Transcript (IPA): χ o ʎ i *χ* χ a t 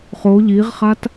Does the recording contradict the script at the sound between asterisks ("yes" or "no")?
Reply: yes